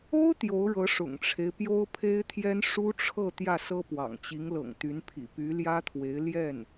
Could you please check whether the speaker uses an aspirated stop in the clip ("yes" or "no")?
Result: yes